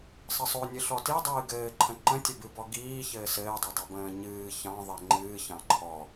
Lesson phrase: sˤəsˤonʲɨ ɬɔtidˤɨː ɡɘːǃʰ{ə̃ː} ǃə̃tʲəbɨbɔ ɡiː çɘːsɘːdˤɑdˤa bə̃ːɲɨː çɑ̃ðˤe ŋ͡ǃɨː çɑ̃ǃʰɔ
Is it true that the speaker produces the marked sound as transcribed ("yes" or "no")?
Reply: no